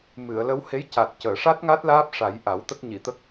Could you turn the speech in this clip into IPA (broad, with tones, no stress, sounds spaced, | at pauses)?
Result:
m ɨ˨˩˨ ə̯ l ə˧˥ w h e˧˥ j c a˨˩ t̚ c əː˨˩˨ ʂ a˦˥ t̚ ŋ a˦˥ t̚ l aː˦˥ p̚ ʂ a˨˩˦ j ʔ a˨˩˦ w t̪ ə˦˥ k̚ ɲ i˨˩˨ t̪ ə˦˥ k̚